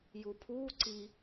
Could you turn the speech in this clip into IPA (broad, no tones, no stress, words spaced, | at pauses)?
jupʰuː ǀi